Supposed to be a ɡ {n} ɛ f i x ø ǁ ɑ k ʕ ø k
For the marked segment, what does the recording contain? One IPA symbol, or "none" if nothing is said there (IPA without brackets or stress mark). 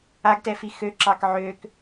t